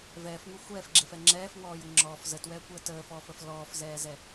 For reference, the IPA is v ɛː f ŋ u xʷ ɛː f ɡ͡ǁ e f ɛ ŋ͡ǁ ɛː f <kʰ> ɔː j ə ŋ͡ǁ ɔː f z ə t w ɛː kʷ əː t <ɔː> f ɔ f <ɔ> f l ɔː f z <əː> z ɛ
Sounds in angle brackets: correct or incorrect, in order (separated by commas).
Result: incorrect, incorrect, incorrect, incorrect